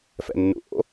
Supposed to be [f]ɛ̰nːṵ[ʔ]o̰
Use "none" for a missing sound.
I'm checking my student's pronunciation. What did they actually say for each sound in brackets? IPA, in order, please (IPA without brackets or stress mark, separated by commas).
f, ʔ